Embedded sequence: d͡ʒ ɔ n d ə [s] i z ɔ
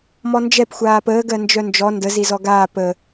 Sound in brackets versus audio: incorrect: z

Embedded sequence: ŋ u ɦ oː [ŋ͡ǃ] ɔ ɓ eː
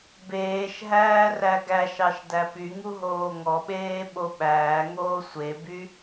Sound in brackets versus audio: incorrect: ŋ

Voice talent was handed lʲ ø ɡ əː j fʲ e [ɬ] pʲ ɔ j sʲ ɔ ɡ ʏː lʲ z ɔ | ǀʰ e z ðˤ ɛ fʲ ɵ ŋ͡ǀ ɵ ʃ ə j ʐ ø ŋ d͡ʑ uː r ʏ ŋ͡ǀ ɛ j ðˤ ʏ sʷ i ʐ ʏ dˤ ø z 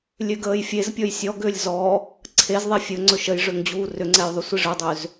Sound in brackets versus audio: incorrect: z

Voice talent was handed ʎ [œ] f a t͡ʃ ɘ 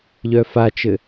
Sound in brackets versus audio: correct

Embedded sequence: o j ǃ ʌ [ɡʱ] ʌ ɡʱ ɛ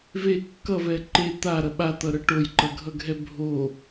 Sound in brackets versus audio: correct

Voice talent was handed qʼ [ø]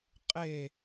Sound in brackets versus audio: incorrect: e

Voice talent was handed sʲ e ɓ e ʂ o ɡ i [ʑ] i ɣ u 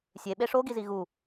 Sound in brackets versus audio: incorrect: z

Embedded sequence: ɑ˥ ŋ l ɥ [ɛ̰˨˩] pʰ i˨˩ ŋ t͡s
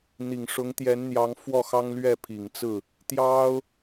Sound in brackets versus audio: incorrect: ɛ˥˩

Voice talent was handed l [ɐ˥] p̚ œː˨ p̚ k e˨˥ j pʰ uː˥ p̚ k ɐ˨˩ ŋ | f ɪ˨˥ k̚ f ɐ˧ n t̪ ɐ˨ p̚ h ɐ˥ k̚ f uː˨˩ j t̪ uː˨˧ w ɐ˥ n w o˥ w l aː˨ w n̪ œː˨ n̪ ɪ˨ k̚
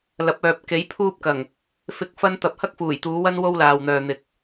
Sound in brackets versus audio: incorrect: ɐ˨˥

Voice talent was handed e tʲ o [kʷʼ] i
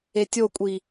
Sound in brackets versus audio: correct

